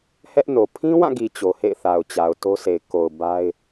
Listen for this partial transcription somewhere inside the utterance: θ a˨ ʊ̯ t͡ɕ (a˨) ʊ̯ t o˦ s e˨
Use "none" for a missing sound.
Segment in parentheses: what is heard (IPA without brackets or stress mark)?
a˨